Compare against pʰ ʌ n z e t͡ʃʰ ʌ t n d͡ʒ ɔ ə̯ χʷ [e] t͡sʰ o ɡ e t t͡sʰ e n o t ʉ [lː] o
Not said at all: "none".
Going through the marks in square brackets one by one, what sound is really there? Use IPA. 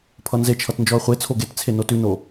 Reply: e, n

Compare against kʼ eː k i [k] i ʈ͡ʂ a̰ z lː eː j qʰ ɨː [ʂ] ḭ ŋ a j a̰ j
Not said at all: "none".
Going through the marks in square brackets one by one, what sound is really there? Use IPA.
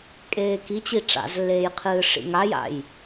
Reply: t͡ɕ, ʂ

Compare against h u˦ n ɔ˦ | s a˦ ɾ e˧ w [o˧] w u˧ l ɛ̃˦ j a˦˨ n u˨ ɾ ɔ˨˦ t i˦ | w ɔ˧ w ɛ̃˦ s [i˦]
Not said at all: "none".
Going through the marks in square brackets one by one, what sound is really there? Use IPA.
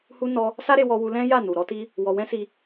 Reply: ɔ˧, i˧

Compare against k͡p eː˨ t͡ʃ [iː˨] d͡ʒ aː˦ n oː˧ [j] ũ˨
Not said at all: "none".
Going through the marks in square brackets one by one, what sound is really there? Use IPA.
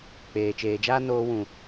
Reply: eː˨, w

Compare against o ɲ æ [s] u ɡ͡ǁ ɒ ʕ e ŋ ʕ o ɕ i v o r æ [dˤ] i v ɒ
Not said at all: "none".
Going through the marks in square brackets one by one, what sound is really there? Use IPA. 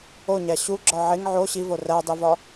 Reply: ɕ, dˤ

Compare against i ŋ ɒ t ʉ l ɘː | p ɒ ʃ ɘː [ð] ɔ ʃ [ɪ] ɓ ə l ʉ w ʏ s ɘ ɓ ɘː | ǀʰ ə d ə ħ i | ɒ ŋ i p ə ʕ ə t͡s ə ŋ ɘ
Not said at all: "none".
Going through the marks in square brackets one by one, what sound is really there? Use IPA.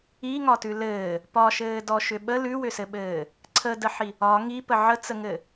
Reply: d, ʏ

